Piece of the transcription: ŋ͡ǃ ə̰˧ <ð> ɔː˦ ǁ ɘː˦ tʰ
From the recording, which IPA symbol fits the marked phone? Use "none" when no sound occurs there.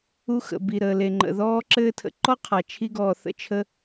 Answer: ð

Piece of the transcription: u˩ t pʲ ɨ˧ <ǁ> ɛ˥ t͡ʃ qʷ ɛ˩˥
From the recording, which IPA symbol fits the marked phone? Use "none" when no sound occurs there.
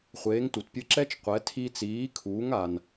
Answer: ǁ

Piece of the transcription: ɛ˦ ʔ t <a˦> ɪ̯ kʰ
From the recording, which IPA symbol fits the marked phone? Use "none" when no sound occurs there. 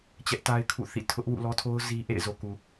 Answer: a˦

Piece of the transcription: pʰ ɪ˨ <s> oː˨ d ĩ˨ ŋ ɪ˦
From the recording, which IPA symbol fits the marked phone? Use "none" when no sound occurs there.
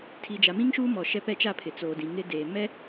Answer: t͡s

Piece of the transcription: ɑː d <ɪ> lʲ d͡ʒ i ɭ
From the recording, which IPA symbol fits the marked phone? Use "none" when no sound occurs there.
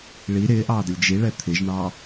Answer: ə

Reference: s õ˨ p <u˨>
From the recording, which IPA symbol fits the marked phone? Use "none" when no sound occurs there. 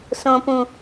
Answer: ũ˨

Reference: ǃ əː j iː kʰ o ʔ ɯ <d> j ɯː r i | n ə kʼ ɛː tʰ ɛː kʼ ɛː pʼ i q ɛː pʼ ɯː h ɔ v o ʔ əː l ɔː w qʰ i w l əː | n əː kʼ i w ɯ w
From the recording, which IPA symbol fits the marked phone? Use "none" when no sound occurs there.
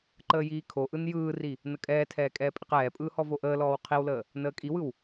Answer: n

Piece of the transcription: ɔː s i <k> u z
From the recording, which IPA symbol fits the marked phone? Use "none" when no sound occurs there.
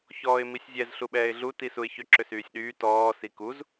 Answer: k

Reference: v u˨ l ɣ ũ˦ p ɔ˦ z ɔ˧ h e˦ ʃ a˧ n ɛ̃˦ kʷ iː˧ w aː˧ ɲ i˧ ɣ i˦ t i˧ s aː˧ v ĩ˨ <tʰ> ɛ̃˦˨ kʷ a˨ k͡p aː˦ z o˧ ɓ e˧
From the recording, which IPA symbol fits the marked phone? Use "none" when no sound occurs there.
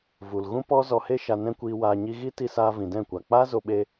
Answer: d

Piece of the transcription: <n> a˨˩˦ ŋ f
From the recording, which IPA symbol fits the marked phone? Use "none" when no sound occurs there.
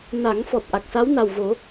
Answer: n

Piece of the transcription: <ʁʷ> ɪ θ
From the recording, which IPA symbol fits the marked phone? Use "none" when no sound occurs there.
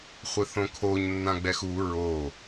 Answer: χʷ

